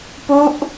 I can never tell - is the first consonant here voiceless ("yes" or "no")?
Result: yes